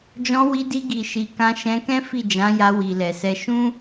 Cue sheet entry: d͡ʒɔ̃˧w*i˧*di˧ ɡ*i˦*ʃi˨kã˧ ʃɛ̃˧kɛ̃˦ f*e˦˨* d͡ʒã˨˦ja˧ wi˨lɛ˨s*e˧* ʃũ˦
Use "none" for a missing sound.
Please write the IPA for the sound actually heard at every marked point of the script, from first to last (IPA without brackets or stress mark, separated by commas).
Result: i˧, i˨, i˦˨, ɛ˧